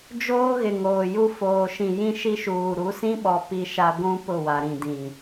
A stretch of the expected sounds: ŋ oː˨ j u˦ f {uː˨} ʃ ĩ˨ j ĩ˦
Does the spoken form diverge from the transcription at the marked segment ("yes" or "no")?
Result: yes